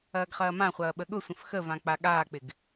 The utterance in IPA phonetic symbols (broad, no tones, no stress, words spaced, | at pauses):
ɐːɡχɐːmãχʷɐː ɓəɠʊsʷə̃f xəvã k͡paɠaːk͡pɪɡ